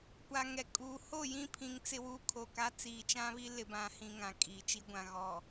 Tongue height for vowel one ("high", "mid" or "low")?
low